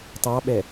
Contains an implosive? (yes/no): yes